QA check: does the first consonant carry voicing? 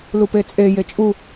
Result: yes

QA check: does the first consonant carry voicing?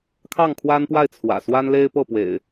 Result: no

